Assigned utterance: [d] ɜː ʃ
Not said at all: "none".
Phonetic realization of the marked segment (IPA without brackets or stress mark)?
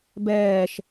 b